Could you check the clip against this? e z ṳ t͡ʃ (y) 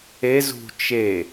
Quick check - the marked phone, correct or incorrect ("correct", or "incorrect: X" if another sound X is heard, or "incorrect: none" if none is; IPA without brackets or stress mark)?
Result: incorrect: e